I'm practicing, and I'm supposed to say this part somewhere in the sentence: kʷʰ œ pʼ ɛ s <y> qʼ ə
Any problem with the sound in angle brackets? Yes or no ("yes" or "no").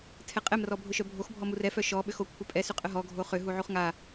no